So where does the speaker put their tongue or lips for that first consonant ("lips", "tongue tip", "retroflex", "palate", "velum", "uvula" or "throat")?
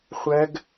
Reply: uvula